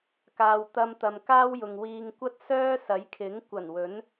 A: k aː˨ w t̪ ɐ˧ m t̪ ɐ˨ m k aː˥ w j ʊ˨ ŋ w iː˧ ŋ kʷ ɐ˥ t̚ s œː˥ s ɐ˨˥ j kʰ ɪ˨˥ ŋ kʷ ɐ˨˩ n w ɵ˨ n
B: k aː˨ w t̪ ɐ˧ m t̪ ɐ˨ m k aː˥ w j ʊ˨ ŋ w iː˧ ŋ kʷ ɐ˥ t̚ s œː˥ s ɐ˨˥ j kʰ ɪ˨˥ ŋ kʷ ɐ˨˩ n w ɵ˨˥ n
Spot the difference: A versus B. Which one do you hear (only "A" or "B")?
B